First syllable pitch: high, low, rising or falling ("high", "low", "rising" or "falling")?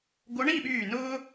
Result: rising